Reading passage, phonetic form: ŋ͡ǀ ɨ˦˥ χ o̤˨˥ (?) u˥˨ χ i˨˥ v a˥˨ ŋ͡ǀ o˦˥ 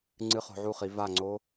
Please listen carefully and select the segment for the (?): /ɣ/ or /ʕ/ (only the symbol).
ʕ